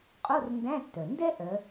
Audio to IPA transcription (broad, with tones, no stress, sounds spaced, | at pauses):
qʼ o˧˥˧ r n d æ̃˧˥˧ tː œ˩ n d ɛ˥ ʔ œ˨˦